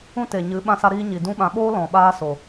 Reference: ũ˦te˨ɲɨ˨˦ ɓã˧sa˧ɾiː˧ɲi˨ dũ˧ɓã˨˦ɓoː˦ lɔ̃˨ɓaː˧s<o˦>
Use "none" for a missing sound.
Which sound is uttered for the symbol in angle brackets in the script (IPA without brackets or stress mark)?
o˨